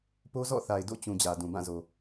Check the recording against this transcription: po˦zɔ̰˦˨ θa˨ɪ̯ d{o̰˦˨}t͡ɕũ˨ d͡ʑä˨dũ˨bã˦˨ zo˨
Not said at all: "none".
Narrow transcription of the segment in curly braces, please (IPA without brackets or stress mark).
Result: o̰˦˨